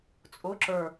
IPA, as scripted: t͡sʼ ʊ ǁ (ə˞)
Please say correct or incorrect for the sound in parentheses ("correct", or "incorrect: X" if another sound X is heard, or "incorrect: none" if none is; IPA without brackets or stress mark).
correct